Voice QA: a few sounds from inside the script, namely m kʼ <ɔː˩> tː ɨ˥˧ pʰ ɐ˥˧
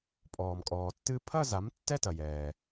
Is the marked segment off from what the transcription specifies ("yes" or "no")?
no